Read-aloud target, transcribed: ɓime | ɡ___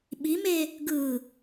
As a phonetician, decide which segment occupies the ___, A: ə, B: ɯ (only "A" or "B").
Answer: B